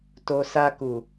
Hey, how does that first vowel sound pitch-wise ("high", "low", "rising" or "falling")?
low